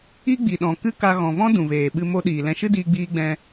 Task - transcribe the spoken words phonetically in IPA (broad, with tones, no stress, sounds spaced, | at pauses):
i˦ ɡ͡b i˨ ɗ ɔ̃˨ k ɨ˦ k a˧ ɣ ɔ̃˨ v ɔ̃˦ d ũ˨ v eː˨ ɓ ɨ˧ m o˧ ɗ iː˨ l ɛ̃˧ ʃ ɨ˦ d iː˧ ɡ͡b iː˧ ɡ͡b ɛ̃˧